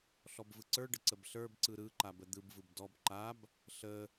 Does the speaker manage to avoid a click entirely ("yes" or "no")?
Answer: no